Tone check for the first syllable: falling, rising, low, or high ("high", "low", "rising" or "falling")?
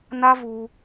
high